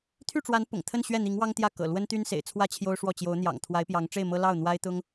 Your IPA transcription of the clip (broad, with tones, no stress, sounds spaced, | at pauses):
t̪ʰ y˥˩ ʈ͡ʂ w a˧˥ n p ʊ̰˨˩ ŋ t̪ʰ ə˥˧ n ɕ ɥ ɛ˥˩ n̪ i˧˥ ŋ w ɑ˥ ŋ t̪ j ä˥˩ k ɤ̰˨˩ l w ə˥ n t̪ y˥ n s ḛ˨˩ ɪ̯ t͡sʰ w ä˥ t͡ɕʰ j o˥ ʊ̯ ʂ w ɔ˥˩ t͡ɕ j o˧˥ ʊ̯ n̪ j ɑ̰˨˩ ŋ t̪ʰ w a˧˥ ɪ̯ p j ɑ˧˥ ŋ ʈ͡ʂ e˥˩ ɪ̯ m ɤ˥ l ɑ˥˩ ʊ̯ n̪ w a˥ ɪ̯ t̪ ʊ˥ ŋ